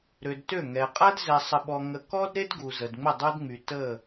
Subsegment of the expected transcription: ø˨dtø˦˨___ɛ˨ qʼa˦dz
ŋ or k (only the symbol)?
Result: ŋ